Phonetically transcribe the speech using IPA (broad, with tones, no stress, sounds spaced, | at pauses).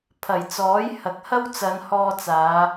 pʰ ɐ˨˩ j t͡s ɔː˨˥ j h ɐ˨˥ k̚ h ɐ˥ w t͡s ɐ˨˧ n h ɔː˧ t͡s aː˨˧